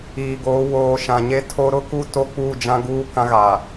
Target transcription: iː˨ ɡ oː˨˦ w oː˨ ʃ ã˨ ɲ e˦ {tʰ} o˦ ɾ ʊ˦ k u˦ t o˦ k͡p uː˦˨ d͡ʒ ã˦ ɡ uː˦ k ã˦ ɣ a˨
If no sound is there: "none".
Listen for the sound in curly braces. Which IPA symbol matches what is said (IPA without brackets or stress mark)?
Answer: tʰ